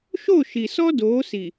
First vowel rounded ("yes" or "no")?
yes